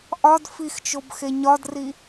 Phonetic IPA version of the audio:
ʔɒd fixt͡ʃobxe ɲɒdri

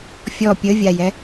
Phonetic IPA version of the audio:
fʲɔ pʲəvʲajɛ

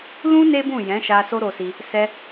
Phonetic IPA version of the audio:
lũ˦ ne˦bũ˦˨ jɛ̃˨˦ʃa˧ so˦ɾo˧si˧ | sɛ˧

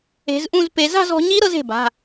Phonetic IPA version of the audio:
e̤˨˦zʔũ˥˧zpe˨˦ za̤˥˧zɔ̤˨˦ɲi˦˥ ɾɤ˦˥ze̤˩˧˩ ba̤˩˧˩

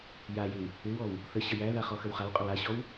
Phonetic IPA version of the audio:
jajɪw | ɪwɔw | θə ɕəjæða χɔxəwχawqʼʏw aɕɔw

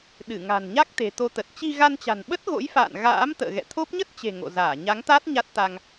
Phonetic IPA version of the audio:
ɗɨ˧˩ŋa̤˨˩nɲa˦˥k̚ t̪e̤˨˩t̪o˧t̪ə˨˩t̚ t͡ɕi˧ɣa˧nt͡ɕa̤˨˩nɓə˦˥t̚ ɣo̰˧˥jfa̰ː˧˨n ɣa̰ː˧˥mt̪ə̰ː˧˨ ɣɛ̰˧˨t̪ʰo˦˥p̚ ɲə˦˥t̚t͡ɕe̤˨˩ ŋo̰˧˨ zaː˧˩ɲa˨˦ŋt̪aː˦˥t̚ ɲa˦˥t̚t̪a˧ŋ

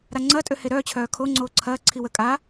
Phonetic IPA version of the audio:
ɾaŋ͡ǀɐːtʼø heɾœːt͡ɕʰœː kʰoŋ͡ǀoː ǀʰɐːǀʰi wə kʼa

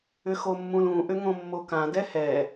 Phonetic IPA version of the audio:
ʏxomːũlũ ʔʏŋõmːokã dɛhɛ

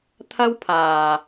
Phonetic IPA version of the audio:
t̪ʰɐ˥wpʰaː˨

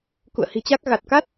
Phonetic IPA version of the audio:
kṵ˧˨ə̯hi̤˨˩t͡ɕa˦˥k̚ ɣa˨˩t̚ka˦˥t̚

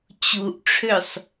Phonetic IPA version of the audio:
t͡ɕuʔʈ͡ʂʰøsˤ

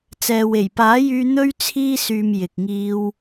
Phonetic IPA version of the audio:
t͡sɛː˨we˨˩jpaː˨˥jyː˧ n̪ɵ˧ɥ t͡sʰiː˧syː˨m jɪ˨k̚ŋiː˧w

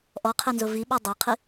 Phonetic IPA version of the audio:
ʔɔqʰenzʊ viɓɔ dˤaqʰi

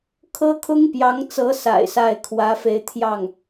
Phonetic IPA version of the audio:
kʰɤ˥kʰʊ˥ŋpjɑ˧˥ŋt͡sɤ˧˥ sa̰˨˩ɪ̯sa˥˩ɪ̯kʰwä˧˥fe˧˥ɪ̯ t̪ʰjɑ˥˩ŋ

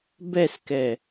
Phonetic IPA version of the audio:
bɛskɛ

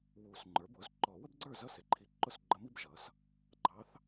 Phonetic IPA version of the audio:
wu˨˩˦s ŋ͡ǃə˞˩˥bʊ˩˥z ǃɔ˨˩˦wə˥bɡ͡ǀə˞˥˩ zʌ˥˩sɪ˩˥ǃʰi˨ǃʊ˥˩s ɡ͡ǃə˧˥mi˥bʒʌ˩˥s | ɡ͡ǃɑ˧˥θ

